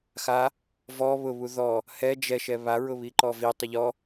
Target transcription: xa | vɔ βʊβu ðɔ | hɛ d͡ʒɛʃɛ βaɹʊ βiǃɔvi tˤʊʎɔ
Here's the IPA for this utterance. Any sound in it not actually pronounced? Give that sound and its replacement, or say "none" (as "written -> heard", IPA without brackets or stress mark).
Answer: none